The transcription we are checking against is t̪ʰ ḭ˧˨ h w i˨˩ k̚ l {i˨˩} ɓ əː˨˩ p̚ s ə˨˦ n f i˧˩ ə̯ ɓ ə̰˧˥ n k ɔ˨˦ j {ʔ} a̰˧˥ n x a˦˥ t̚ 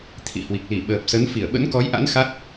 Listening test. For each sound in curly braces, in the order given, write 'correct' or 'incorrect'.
incorrect, correct

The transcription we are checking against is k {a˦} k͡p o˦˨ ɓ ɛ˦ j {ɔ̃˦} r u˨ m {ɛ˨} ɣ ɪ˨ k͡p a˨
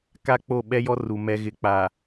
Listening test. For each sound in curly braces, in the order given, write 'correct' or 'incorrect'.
correct, incorrect, correct

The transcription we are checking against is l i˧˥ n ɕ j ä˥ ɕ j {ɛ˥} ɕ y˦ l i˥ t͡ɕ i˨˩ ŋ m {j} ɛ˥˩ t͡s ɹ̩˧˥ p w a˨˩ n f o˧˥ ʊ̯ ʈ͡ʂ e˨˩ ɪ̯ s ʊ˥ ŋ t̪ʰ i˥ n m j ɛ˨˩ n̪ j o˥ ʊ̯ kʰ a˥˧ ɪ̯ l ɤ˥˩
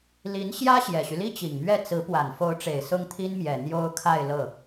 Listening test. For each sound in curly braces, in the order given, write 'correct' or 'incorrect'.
incorrect, incorrect

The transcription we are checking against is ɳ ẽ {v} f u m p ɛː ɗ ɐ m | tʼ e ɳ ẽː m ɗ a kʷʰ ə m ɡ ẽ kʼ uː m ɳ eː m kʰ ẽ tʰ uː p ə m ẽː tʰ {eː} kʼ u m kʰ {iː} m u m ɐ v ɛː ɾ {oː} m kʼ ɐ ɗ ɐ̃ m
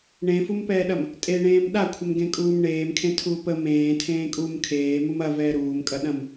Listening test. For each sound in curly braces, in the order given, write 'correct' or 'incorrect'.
incorrect, incorrect, incorrect, incorrect

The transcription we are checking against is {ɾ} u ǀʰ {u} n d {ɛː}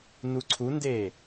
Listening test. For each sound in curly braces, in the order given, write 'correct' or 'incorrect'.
incorrect, correct, incorrect

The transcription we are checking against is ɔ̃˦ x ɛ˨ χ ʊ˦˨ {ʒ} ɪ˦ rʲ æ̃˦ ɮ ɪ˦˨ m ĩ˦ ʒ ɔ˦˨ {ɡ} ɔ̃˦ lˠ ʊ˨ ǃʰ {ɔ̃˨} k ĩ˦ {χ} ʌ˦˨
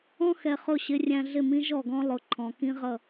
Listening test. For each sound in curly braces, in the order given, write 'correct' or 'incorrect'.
incorrect, correct, correct, incorrect

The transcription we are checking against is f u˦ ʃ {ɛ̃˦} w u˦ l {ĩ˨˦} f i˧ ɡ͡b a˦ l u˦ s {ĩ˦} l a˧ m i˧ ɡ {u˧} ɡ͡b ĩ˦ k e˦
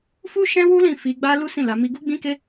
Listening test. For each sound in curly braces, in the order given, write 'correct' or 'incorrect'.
correct, incorrect, incorrect, incorrect

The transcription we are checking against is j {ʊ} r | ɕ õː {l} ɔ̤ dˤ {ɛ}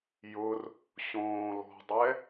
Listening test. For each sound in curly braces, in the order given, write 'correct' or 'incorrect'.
correct, correct, correct

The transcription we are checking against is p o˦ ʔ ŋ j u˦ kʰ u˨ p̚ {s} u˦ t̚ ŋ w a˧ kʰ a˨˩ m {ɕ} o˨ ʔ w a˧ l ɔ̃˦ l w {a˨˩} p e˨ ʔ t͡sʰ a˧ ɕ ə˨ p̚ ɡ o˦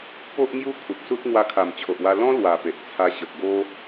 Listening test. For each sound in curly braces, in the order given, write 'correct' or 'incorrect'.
correct, incorrect, correct

